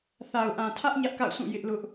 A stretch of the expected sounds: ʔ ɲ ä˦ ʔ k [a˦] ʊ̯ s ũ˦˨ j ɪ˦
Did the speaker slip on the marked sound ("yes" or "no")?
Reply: yes